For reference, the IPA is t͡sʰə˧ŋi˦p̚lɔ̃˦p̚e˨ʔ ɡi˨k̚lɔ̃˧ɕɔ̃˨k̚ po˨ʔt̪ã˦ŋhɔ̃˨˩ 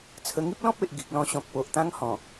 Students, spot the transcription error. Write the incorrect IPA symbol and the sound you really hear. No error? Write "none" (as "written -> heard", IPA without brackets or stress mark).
none